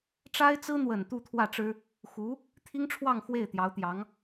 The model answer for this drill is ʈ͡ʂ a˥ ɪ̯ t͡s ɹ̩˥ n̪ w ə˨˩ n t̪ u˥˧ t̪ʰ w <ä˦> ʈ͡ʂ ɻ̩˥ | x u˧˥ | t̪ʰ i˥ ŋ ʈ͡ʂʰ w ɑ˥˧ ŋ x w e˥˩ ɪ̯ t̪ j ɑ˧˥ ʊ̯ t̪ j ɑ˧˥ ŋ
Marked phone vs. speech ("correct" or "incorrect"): incorrect